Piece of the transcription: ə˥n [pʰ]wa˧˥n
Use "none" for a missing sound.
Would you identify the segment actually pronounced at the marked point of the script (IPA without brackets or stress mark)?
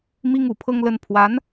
pʰ